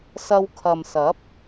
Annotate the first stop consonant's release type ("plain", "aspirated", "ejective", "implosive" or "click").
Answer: aspirated